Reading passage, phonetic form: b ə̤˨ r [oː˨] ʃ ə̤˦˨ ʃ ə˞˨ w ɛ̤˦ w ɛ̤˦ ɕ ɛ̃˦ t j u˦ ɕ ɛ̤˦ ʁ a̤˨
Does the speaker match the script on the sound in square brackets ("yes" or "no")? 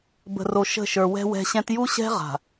no